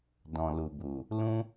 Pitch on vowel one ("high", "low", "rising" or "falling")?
low